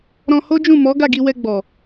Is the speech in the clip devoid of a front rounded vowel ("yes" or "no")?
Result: yes